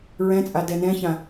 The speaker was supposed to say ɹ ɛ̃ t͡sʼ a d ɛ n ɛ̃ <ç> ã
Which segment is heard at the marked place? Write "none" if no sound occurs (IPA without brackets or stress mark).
ç